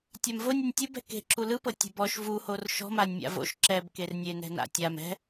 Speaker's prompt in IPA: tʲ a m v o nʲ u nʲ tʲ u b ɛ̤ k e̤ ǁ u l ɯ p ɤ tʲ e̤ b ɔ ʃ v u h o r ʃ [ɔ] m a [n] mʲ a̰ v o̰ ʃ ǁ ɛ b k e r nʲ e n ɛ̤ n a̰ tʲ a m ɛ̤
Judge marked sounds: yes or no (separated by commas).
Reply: no, no